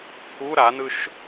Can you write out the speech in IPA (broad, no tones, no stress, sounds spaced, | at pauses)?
pʰ u ɾ a n ɯ ʃ